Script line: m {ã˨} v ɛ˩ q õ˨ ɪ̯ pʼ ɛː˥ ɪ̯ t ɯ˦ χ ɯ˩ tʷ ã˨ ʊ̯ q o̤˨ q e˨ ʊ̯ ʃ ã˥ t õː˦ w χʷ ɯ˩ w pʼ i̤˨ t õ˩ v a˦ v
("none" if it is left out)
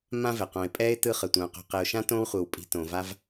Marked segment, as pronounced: ã˥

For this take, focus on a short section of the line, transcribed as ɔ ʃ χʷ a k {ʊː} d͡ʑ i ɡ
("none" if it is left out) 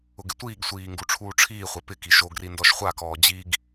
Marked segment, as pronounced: ɔː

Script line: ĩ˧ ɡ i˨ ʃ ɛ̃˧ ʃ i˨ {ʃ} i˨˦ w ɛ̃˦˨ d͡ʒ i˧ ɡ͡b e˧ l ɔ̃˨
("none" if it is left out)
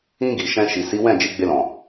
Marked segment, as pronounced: s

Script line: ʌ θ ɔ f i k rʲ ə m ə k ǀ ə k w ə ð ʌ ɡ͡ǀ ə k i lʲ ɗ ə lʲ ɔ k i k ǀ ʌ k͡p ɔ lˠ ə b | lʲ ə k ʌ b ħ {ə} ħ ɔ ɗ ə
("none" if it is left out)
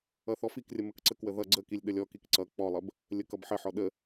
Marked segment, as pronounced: ə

